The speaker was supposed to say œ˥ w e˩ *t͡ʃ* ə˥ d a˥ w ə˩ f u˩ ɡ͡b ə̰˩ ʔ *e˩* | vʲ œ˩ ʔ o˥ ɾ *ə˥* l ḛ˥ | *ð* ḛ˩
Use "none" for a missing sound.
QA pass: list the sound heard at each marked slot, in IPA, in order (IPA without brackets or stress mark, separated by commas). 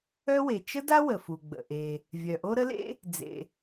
t͡ʃ, e˩, ə˥, d͡z